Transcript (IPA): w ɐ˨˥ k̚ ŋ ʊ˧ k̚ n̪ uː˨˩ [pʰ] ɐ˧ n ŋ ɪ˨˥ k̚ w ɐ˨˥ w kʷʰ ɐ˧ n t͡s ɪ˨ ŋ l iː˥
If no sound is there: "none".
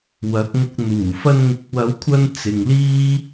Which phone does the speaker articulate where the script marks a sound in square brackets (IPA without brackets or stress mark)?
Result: f